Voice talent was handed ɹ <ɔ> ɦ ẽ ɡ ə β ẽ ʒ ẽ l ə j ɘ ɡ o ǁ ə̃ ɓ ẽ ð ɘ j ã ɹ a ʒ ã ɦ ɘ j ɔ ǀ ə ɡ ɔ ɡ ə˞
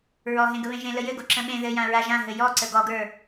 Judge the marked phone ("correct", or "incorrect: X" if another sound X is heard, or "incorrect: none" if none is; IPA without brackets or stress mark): correct